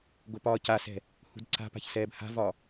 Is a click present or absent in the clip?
present